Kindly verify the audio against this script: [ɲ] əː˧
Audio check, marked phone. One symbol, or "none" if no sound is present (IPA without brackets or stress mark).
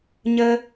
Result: ɲ